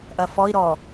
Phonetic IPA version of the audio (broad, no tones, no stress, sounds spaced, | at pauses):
ʔ ɐ f ɔ i̯ ɾ ɔ